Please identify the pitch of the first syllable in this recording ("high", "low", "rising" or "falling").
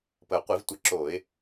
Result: low